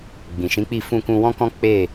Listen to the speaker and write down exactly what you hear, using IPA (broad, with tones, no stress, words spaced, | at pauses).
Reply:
ɡ͡bĩ˨ʃĩ˨˦k͡pi˦˨ fũ˧kũ˧wɔ̃˦kɔ̃˦ k͡pe˦˨